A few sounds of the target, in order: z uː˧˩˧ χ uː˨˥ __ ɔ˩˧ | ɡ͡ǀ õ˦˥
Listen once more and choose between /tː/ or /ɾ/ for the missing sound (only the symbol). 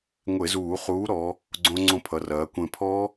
ɾ